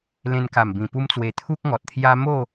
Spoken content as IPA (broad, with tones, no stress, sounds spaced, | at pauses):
l ẽ˧ n k a˨˩ m b ĩ˨˩ p u˦ m t͡s w e˧ t̪ʰ u˦ k̚ ŋ ɔ˨ t̚ t̪ʰ j a˦ m o˥˧